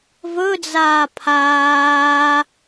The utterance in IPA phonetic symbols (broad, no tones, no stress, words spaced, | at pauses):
vɵd͡zaː pʰaː